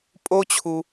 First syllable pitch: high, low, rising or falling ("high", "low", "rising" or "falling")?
high